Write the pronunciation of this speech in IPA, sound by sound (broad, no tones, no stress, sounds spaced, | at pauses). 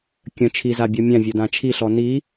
kʲ ə̃ t͡ʃʰ i z a bʲ ɔ mʲ ã vʲ o d ã t͡ʃʰ i ɬ ɔ n i